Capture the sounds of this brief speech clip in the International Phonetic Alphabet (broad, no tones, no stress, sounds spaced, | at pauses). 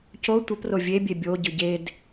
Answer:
c o tʷ ə p r o vʲ e bʲ e bʲ o ɟ ɯ ɟ e d